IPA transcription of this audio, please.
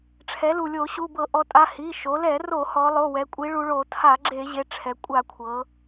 ʈ͡ʂʰ ɛ˩˧ l u˩ lʲ o˧˩˧ ɕ u˩˧˩ b ɤ˧˩˧ ʔ ɔ˩˧ tʼ a˩˧˩ h i˩˧˩ ʃ o˩˧ l ɛ˧˩˧ r o˧˩˧ h ɔ˩˧ lˠ o˩˧˩ w ɛ˩˧ kʷʼ i˩˧ ɭ u˩˧ ɭ o˧˩˧ tʰ a˧˩˧ ɡ͡ǁ e˧˩˧ ʑ e˩˧˩ ʈ͡ʂʰ ɛ˩˧ kʷʼ a˧˩˧ kʷʰ ɤ˩˧

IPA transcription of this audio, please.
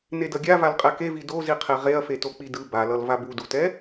n e d ʌ ɡʲ a v a l qʼ ɛ k e v i d o z i qʰ e ʁ e ɐ̯ f e t o k͡p i d ɯ b a l ʌ l v a b u d u t ɛ

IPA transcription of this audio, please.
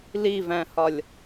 l i v æ̃ h ɒ lʲ

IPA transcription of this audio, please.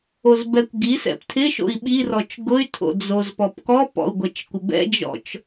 o z b ɛ kʷ ɡ i s ɛ̰ p tʰ ɪ ʃ o̰ i̯ ɓ i r ɔ t͡ʃ ɡ ʊ y̯ tʰ o̰ d͡z o z p ɔ p k ɔ p ɔ̰ u̯ ɡʷ ɛ t͡ʃ kʷ ɪ b ɛ̰ d͡ʒ ɔ̰ t͡ʃ

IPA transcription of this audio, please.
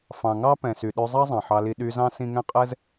f ɑ̃˩ ŋ ɑ˦ p ɛ̃˩ s y˩ ɗ ø˨ zˤ ɑ˥ zˤ ɑ̃˩ ħ ɑ˨ l i˨ ɗ y˨ z ɑ̃˥ s ĩ˦ ŋ ɛ̃˥ qʼ ɛ˥ z

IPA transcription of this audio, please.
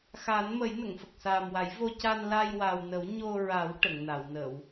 x a˨˩˦ n m ə˨˩˦ j n ə˨˩˨ ŋ f ə˨˩ k̚ s aː˨˩ m w a˨˩˦ j v o˧ c a˧ n l a˧ j w a˨˩ w n ə˨˩˦ w ɲ o˧ ɹ a˨˩˦ w ʈ ə˨˩˨ ŋ n a˨˩˨ w n ə˨˩˨ w

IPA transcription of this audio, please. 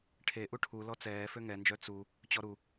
ʈʰ e ʔ u ʈʰ u l ɔ t͡s ɛː f ø ŋ ɛ n d͡ʒ œ t͡s u | t͡ɕ ɔ ɾ u

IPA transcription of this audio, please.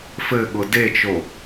f ɘ ɠ ʊ d e t͡ʃ o

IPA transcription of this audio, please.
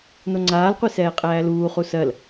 n o ŋ͡ǀ aː l qʷ i s ɛː qʼ æː l uː χ u s ɜ l

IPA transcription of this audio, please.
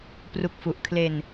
p r u˨˩ k̚ f u˨˩ ʔ kʰ l e˧ n

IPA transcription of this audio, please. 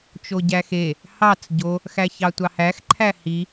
t͡ʃ o ɟ æ x e | h ɑ t͡s ɟ o | x æ ç ɑ tʷ ɑ h æ x ǃʰ æ h i

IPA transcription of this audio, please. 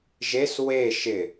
ʒ e s w e ʃ ɪ

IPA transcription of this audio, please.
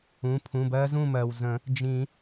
ũ˩˧˩ pʰ ũ˩˧˩ b ɜ˦˥ z ũ˥˨ m ɜ˩ w z ə̃˨˩˦ | d͡ʒ ĩ˨˩˦

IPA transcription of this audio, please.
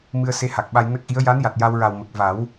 m ɨ˧ ə̯ s e˧˥ h a˨˩ k̚ ɓ a˧ j n ə˦˥ k̚ ʔ i˧˥ ə̯ j a˧˥ n j a˨˩ t̚ j a˧ w ɹ a˨˩ w m ə˨˩ k̚ v a˨˩˦ w

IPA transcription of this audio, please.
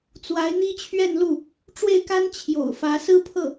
t͡s w a˧˥ ɪ̯ n̪ i˥ t͡ɕʰ ɥ ɛ˥˧ n l u˥˩ | ʈ͡ʂ w e˥˩ ɪ̯ k a˥ n t͡ɕʰ j o̰˨˩ ʊ̯ f ä˧˥ s ɹ̩˥ pʰ ɤ˥˩

